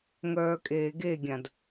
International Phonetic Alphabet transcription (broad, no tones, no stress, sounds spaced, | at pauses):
ŋ œː kʼ eː ɡ e ɡʲ ã d